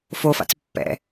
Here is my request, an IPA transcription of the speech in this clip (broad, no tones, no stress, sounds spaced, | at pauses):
f o f a̰ t͡s pː ɛ̰